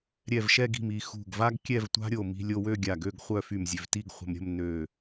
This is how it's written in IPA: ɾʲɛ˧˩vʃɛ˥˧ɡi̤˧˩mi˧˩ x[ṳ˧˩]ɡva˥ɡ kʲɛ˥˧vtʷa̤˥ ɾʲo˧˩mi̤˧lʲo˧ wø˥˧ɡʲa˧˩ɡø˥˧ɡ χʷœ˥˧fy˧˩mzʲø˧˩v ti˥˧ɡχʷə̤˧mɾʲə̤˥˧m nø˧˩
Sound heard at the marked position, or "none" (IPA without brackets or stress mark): ṳ˧˩